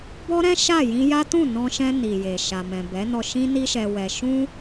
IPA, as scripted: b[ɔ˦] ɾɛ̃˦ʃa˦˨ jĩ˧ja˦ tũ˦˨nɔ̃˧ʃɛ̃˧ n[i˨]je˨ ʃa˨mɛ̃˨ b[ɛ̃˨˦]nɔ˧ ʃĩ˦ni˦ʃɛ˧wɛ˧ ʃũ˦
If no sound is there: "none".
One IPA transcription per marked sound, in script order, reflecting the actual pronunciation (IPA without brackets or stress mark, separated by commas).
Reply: ɔ˦, i˨, ɛ˨˦